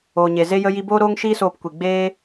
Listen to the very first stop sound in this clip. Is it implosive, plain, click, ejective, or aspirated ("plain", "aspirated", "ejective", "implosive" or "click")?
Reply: plain